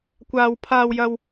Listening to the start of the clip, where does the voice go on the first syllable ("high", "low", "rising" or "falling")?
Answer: low